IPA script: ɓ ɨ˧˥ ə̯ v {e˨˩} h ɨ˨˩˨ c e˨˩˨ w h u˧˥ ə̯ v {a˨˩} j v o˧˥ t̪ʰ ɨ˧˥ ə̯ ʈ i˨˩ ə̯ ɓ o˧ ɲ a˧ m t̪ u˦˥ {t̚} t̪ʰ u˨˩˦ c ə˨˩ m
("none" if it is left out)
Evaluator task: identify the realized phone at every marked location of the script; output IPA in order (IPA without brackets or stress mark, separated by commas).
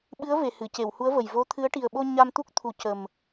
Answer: e˨˩, ə˨˩, k̚